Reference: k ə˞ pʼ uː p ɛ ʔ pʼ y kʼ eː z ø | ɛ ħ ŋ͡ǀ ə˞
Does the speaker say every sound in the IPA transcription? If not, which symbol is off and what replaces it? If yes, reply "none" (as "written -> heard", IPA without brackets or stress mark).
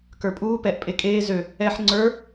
y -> e